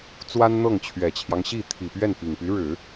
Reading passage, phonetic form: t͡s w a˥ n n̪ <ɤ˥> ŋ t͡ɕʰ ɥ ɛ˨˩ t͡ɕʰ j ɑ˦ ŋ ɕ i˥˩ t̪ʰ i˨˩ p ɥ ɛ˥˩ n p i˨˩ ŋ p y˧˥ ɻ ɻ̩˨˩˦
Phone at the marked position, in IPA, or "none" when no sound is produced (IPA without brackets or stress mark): ɤ˥˩